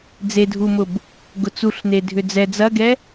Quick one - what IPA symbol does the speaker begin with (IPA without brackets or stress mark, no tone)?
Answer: d͡z